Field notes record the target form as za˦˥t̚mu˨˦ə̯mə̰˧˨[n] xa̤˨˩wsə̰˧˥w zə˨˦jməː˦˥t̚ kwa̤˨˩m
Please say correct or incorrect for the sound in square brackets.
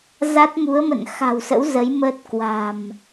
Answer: correct